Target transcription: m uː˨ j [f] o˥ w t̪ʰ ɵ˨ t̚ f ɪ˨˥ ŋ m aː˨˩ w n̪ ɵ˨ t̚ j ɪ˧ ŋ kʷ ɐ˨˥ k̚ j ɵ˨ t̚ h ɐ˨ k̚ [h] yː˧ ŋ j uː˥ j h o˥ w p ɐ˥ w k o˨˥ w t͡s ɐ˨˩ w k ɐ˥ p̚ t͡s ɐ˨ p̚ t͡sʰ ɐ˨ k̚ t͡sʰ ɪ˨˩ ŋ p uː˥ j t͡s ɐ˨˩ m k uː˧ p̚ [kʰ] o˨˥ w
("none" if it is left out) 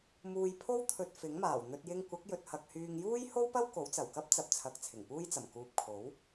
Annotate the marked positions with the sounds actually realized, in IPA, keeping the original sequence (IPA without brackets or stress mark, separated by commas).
pʰ, h, kʰ